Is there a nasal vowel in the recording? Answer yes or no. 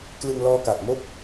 no